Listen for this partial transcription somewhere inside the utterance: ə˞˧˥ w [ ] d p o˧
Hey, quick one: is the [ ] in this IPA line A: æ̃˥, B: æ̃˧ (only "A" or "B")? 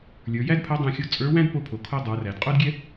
A